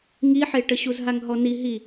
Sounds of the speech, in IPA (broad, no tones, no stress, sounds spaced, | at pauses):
ŋ i ħ e ʈ ə ɕ u z ɦ a ŋ ɦ ɔ n i ɦ i